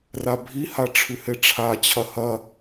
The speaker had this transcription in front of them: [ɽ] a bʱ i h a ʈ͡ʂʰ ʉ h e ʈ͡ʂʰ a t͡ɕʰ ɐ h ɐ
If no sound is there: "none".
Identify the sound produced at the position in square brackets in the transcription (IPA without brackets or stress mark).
r